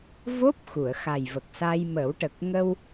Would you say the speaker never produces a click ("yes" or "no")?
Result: yes